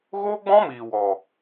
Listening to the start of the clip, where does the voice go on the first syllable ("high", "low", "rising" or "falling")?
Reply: high